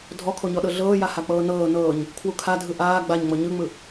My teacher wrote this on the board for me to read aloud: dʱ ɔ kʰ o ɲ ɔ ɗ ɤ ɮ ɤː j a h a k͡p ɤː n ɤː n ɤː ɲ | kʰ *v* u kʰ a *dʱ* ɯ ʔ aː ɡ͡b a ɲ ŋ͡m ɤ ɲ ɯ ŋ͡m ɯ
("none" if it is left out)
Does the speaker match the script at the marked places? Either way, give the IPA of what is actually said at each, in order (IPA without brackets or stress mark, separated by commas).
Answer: w, dʱ